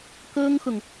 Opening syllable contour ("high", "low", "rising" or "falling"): high